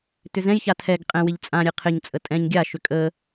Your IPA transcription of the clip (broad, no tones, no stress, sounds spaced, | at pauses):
t ʏ z ɛ̃ j ç a tʰ ɛ ɡ qʼ ɛ̃ w ɪ ʎ t͡sʼ ã ɾʲ ɛ qʰ ɪ ɲ t͡sʼ ə tʼ ɛ̃ ɲ ɡʲ a ʃ ʏ kʼ ə